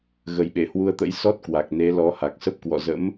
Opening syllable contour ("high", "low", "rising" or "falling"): low